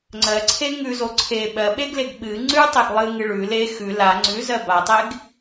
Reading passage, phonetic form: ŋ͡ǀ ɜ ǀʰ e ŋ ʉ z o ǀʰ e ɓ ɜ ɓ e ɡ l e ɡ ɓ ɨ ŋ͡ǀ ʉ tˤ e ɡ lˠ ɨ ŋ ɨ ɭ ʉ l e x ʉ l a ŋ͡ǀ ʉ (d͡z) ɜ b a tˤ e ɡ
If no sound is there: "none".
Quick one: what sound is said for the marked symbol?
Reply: z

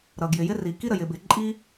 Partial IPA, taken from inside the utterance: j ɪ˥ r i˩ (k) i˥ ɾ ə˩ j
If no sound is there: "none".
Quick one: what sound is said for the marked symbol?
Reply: k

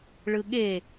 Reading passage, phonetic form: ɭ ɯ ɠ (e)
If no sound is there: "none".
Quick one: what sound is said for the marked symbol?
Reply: e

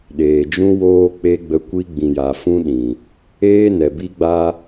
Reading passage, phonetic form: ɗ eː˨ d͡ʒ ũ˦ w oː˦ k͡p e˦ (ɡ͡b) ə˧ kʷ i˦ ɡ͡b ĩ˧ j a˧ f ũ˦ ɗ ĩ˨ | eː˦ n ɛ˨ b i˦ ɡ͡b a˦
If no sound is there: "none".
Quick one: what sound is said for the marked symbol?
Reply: ɡ͡b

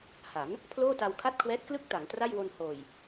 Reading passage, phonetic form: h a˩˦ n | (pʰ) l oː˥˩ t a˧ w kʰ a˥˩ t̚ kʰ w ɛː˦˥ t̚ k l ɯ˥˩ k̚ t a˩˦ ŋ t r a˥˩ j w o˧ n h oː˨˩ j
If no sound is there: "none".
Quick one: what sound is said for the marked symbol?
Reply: pʰ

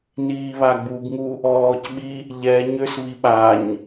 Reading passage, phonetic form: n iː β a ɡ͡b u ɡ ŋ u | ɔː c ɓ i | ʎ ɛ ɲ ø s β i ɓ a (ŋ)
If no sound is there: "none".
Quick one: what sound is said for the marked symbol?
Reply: ɲ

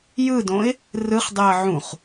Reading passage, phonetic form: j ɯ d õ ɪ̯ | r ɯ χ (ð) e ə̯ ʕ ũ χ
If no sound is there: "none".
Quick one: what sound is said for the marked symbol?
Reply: dˤ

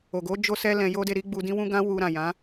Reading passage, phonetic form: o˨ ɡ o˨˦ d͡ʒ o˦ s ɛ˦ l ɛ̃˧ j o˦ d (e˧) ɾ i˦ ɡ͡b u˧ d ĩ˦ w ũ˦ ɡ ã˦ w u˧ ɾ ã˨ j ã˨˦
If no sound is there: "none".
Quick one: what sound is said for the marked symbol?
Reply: e˧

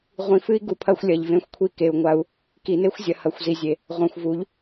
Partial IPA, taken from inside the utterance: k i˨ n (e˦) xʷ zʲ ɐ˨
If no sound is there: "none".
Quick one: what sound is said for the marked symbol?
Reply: e˦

